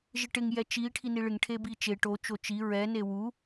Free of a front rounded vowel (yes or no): yes